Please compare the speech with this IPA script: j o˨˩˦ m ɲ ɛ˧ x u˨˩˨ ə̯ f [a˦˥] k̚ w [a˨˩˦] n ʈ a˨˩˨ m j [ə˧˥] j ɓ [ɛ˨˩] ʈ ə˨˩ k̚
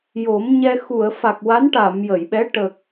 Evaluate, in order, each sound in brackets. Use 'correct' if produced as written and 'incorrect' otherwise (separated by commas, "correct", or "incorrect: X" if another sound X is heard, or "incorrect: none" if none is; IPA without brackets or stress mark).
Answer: incorrect: a˨˩, incorrect: a˧˥, incorrect: ə˨˩˨, incorrect: ɛ˧˥